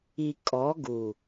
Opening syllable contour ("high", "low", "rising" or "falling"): low